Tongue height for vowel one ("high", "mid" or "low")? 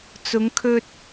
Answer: high